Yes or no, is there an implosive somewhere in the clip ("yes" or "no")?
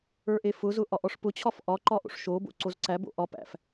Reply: no